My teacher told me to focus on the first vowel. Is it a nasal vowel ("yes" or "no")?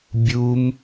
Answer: no